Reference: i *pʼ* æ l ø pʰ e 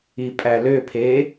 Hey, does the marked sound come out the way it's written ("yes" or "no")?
yes